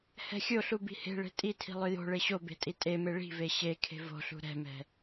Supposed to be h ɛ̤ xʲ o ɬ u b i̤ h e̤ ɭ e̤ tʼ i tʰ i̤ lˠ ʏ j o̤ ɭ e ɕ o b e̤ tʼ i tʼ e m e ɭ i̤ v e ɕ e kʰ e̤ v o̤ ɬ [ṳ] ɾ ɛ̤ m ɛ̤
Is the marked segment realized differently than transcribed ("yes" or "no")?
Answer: no